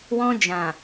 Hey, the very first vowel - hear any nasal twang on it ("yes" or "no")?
yes